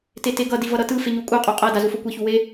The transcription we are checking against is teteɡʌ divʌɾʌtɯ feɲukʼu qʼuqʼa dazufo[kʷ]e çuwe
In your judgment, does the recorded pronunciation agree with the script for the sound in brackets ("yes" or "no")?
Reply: yes